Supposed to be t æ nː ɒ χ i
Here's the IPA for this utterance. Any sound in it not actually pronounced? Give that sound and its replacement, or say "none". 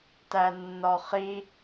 none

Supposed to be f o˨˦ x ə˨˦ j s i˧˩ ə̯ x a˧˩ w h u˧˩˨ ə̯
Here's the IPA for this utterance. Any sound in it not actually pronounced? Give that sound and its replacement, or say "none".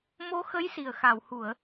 f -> m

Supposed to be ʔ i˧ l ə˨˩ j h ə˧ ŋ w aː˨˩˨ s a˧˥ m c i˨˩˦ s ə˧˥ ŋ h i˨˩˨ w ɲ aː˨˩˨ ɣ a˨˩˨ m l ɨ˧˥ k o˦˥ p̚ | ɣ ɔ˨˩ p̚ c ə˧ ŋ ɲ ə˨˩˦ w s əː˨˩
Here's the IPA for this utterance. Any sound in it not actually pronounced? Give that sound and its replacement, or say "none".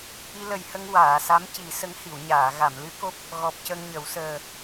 none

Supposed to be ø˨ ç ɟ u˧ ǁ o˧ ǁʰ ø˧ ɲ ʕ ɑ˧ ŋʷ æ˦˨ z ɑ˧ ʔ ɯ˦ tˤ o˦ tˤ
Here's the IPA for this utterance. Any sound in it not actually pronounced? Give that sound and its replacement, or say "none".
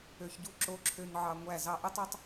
none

